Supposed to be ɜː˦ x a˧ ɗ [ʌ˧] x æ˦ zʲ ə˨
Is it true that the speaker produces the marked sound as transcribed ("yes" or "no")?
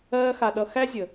yes